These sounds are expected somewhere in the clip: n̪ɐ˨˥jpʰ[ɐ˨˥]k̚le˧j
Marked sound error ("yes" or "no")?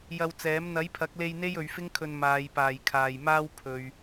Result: no